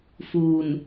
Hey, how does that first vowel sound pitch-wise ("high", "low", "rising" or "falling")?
low